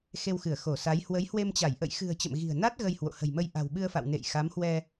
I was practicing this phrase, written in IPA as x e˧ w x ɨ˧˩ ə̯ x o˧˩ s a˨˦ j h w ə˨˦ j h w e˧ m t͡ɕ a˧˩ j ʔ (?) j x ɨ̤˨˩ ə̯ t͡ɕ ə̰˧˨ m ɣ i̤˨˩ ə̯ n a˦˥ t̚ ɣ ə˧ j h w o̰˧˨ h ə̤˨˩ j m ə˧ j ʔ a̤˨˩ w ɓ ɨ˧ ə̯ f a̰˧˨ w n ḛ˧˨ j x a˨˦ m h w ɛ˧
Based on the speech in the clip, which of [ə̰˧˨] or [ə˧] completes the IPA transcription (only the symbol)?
ə̰˧˨